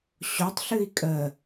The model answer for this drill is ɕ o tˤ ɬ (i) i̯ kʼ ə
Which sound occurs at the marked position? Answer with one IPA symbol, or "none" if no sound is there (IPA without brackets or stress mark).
ɨ